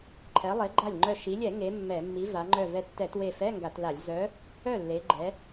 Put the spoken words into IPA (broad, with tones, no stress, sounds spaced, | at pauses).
ǃʰ ɛ˨˥ lˠ e˨˥ ɡ͡ǃ a˥˩ lʲ ŋ͡ǃ œ˧˩ ʃ i˩˧ lʲ ɛ˧˩˧ ŋ e˨˥ mː ɛ˧˩˧ mː i˨˥ v a˩˧ ŋ͡ǃ œ˧˩ v ɛ˧˩ tː ɛ˧˩˧ t w e˧˩ f ɛ˧˥˧ ŋ ɡ a˧˩˧ t l a˧˩˧ lʲ z œ˨˥ | œ˥˩ lː e˩˧ ɡ͡ǃ ɛ˩˧